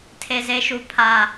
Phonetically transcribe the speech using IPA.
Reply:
tʰ e˨ z e˦ ʃ u˨ pʰ aː˨

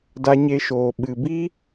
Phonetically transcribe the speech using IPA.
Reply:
d a˧ ɲ e˧ ʃ oː˨ ɓ ɨ˨ b i˦

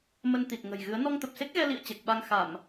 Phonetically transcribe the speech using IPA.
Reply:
m ə˧ n t̪ i˨˩ t̚ ŋ ə̤˨˩ j ɣ ɨ˨˦ ə̯ n ɔ˧ ŋ t̪ ə˨˩ p̚ s e˦˥ k̚ ɣ ɛ˧ l ḭ˧˨ ə̯ t͡ɕ ɛ˨˩ k̚ ɓ a˧ ŋ x a˧˩˨ m

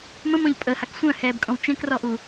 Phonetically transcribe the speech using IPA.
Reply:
m ə̃ m ɔ̃ ʎ pʼ ə h a k sʷ œ̃ h ɛː b kʼ ɔ̃ w t͡ʃ ɛ̃ k r ɔ ʔ u

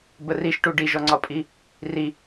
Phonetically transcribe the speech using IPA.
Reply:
b ə r i ʃ ʈ u ɖ i ʒ ɔ ŋ͡ǀ ɒ pʼ i | r i

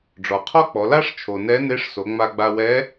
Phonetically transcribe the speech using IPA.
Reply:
ɖ͡ʐ ɔ˩ qʰ ɔ˥ k͡p ɔ˩˧ l a˥ ʂ t͡ʃʰ o˩ n ɛ˧˥ n e˧˥ ʂ s o˩˧ ŋ͡m a˧ ɡ͡b a˧ w ɛ˧˥

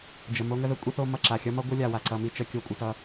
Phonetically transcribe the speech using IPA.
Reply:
d͡ʒ ə˨ m o˦ ŋ ə˦ ð ə˦ kʷʼ i˦ θ o˦ m ʌ˦ ǁ a˨ xʲ ʌ˦ m ʌ˦ ɡʷ ʌ˦ lʲ a˨ w a˨ ǀ ʌ˨ m i˦˨ t͡ʃ ə˦ kʲ o˦ kʷʼ ə˦ t ʌ˦

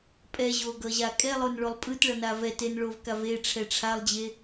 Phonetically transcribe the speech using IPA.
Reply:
pʼ ɛ ʑ o ɡ ʌ ʑ a kʼ ɛ lˠ o n ɭ o lˠ pʼ ɯ t ɭ ʌ n a v ɛ t e n ɭ o v k a v e ʈ͡ʂʰ ɛ ʈ͡ʂʰ a lˠ d͡ʑ e

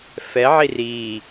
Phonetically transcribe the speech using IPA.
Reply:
f ɛ ʕ i r i

